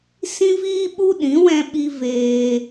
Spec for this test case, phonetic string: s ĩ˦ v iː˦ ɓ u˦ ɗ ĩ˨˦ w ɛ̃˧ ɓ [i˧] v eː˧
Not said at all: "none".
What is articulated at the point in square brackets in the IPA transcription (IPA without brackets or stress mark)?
i˧